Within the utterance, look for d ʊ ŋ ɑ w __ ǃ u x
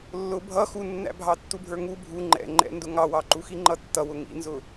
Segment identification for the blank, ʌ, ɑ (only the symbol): ɑ